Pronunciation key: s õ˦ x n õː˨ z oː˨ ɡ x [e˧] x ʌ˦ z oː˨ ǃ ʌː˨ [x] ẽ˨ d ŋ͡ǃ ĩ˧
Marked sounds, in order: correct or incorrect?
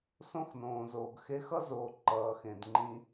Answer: correct, correct

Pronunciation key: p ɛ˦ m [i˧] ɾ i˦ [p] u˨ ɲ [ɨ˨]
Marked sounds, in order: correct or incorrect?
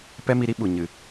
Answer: correct, incorrect: ɓ, correct

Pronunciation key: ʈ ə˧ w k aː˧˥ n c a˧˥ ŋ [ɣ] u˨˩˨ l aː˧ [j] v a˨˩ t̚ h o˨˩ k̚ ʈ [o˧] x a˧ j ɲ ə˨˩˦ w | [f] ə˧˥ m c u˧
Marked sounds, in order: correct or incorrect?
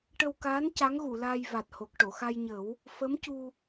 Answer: correct, correct, incorrect: o˨˩˨, correct

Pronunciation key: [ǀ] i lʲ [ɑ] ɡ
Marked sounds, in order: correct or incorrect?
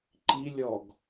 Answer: incorrect: ǃ, incorrect: ɔ

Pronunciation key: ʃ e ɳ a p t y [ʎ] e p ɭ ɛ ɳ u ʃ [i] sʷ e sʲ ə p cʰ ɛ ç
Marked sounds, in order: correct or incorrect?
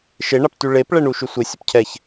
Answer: incorrect: ɭ, incorrect: y

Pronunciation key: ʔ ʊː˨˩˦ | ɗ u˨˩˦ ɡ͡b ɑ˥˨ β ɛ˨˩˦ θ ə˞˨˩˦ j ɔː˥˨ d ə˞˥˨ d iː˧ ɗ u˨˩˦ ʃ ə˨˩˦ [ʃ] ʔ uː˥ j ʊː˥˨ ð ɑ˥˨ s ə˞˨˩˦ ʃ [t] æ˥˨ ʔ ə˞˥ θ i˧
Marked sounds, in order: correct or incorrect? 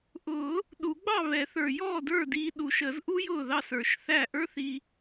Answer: incorrect: z, incorrect: θ

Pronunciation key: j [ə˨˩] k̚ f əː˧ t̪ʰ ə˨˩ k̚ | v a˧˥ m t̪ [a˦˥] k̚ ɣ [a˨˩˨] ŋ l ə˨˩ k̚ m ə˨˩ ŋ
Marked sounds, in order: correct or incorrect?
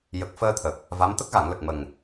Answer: correct, incorrect: ə˦˥, correct

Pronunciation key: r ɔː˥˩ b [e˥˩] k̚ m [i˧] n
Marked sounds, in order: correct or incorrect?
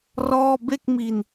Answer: correct, correct

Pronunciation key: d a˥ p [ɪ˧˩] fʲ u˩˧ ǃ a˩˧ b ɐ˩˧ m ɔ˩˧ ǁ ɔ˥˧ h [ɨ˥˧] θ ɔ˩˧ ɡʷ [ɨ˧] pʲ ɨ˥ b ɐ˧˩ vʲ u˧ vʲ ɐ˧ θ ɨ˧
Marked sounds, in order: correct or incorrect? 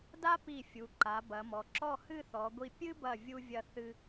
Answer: incorrect: i˧˩, correct, incorrect: i˧

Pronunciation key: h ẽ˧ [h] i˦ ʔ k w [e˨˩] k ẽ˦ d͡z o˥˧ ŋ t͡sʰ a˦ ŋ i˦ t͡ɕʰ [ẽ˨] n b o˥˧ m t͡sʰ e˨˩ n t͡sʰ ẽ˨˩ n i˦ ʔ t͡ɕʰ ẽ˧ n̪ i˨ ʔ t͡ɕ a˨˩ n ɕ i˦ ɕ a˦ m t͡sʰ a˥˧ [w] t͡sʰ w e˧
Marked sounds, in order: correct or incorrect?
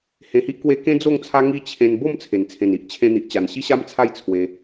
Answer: correct, incorrect: e˦, incorrect: ẽ˧, incorrect: j

